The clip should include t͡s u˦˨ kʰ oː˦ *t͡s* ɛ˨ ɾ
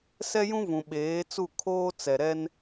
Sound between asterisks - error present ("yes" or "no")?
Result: no